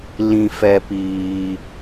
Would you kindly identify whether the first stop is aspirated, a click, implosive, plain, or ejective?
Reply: plain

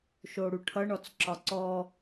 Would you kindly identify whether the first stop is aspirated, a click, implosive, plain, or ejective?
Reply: aspirated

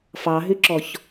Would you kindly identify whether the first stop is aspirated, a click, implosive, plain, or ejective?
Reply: click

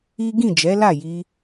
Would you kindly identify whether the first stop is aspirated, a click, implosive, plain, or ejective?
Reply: plain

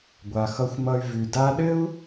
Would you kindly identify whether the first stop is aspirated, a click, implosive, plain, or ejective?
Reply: plain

